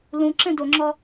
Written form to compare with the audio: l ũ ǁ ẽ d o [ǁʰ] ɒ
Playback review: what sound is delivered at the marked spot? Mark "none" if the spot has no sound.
ŋ͡ǁ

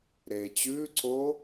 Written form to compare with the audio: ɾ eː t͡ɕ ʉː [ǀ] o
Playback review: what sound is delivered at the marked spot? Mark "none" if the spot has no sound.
ǀ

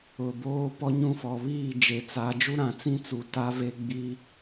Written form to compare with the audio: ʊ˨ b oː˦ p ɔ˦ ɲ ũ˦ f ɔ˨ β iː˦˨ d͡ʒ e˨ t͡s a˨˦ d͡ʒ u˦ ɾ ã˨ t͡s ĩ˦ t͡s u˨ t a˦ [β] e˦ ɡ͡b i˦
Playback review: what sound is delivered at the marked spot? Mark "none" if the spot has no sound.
v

